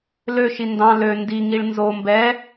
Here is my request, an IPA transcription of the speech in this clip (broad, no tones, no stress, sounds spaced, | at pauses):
l ø ʃ i n d ɑ̃ l ø n d i ŋ i ɭ n z o m b ɛ